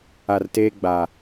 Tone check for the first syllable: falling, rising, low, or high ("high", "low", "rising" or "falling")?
low